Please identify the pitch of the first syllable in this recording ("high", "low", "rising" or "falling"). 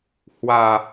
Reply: low